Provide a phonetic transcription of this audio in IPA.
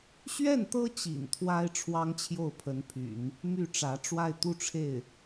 ɕ ɥ ɛ˥˩ n t̪ ɤ˥ t͡ɕ ḭ˨˩ n t̪ʰ w a˥ ɪ̯ ʈ͡ʂʰ w ɑ˥ ŋ t͡ɕʰ j o˥˩ ʊ̯ pʰ ə˧˥ n pʰ y̰˨˩˦ n | m y˥˩ ʈ͡ʂ ä˧˥ ʈ͡ʂ w a˥˧ ɪ̯ t̪ u˥˧ ʈ͡ʂʰ e˥˩ ɪ̯

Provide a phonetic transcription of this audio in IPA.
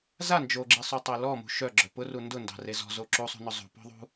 z a n d͡ʒ o ɡ͡ǁ i sˤ o tˤ o l ɔ m ṳ ʃ œ ɡ͡ǁ œ p ʊ r u n d ʊ n d ɑ̤ r e z ɔ̤ z o ǁ u sˤ ṳ n ʊ zˤ ṳ p ɔ̤ ðˤ ṳ

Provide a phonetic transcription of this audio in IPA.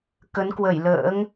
k ə˨˦ n k w ə˧˩ j l ə̰ː˧˥ ŋ

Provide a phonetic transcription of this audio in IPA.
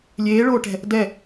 lʲ eː ɭ oː ʈ ɛ̤ | d ɛ

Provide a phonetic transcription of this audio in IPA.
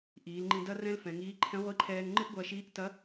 ʔ iː˩˧ l ŋ͡ǃ ĩ˧ d ɐ˥ r ɛ̃˥ l f ɛ̃˩˧ ŋ iː˧˥ ǃʰ ɛ̃˧˥ ʁʷ i˧˥ ǃʰ ɛː˧ ŋ ŋ͡ǃ ɨ˥ ʔ ɡʷ ɐː˧ ʃ iː˧˥ ʔ t ɐ˧˥

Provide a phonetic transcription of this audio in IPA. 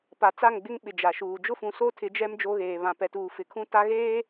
p a˨ t͡s a˦˨ ŋ ɡ͡b ɪ˦ ŋ ɓ ɪ˨ d͡ʒ a˨ ʃ uː˨ d͡ʒ ʊ˦ f ũ˨ s o˦ tʰ ɪ˨˦ d͡ʒ ɛ˦ m d͡ʒ o˦ ɣ eː˨ β ã˨ p ɛ˨ t uː˨ f ɪ˨ kʰ ũ˦ t a˦ ɣ eː˦

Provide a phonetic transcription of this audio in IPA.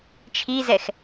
t͡ʃʰ i z ɛ x

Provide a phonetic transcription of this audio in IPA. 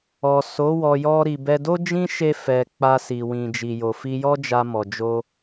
ɔ˨ s o˨˦ w ɔ˧ j ɔ˦ ɾ i˧ b ɛ˧ d o˦ d͡ʒ ĩ˦ ʃ e˦ f ɛ˧ k͡p a˧ s i˨ w ĩ˨ d͡ʒ i˨ j o˨ f i˧ j ɔ˦ d͡ʒ a˧ m ɔ˨ d͡ʒ o˧

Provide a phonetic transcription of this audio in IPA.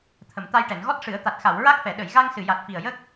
t̪ʰ ə˨˩ m t̪ a˧ j ʈ ɛ˨˩˨ n ɣ ɔ˦˥ t̚ ʂ ɨ˨˩˦ ə̯ t̪ a˨˩ t̚ x a˨˩˨ w ɹ a˦˥ k̚ f ɛ˨˩˨ ɗ ə˨˩˨ j ɣ a˧ ŋ s ɨ˨˩ j a˨˩ t̚ f i˨˩ ə̯ j ə˦˥ k̚

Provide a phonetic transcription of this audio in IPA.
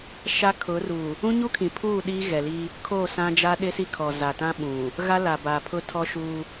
ʃ a˦ kʰ ʊ˨˦ r u˨ | ũ˦ ɲ u˦ kʰ ĩ˨ pʰ uː˦˨ ɗ i˦ ɣ ɛ˨ l i˦ | kʰ oː˦˨ s ã˦ d͡ʒ a˦ ɗ ɪ˦ s i˦ kʰ ɔ˨ z a˨ t ã˦ ɓ ũ˨ | ɣ a˦ l a˨ b aː˨ pʰ ʊ˦ tʰ ɔ˦ ʃ uː˦

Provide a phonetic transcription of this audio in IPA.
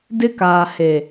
d ɪ˦ k aː˨ h e˨

